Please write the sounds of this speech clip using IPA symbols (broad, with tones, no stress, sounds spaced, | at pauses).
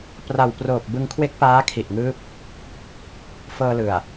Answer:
p r a˨˩ w p r oː˨˩ p̚ b ɯ˧ ŋ kʰ w e˦˥ k̚ p aː˦˥ kʰ i˨˩ ʔ ŋ ɯː˦˥ p̚ | f ɤː˧ l ɯ˨˩ a̯